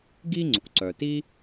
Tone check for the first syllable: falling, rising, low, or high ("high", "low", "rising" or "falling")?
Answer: high